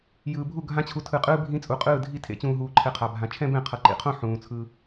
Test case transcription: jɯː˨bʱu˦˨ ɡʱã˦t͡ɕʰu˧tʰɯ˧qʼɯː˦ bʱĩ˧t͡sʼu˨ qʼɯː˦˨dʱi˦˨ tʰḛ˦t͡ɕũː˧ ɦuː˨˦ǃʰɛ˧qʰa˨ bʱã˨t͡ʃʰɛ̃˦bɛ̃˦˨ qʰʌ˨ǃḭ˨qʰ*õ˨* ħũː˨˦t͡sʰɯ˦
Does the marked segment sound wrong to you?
yes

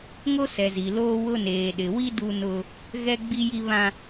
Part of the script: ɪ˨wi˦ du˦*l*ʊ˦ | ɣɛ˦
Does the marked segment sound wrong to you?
yes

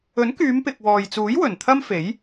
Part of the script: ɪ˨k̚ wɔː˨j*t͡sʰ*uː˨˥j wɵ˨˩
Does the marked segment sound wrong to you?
yes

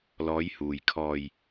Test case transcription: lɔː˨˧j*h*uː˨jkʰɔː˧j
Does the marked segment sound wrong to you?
no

